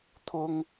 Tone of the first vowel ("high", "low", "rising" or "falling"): high